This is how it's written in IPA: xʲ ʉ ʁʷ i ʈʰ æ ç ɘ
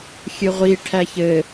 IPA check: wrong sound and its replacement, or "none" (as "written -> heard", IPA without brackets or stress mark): ʉ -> ɨ